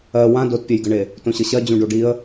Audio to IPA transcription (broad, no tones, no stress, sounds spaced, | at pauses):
ɜ w ã d o t pʲ e j ɡ ə ɳ e | t õ ɕ ɤ ɕ ɜ d͡ʑ ũ ɖ o ɖ i ə̯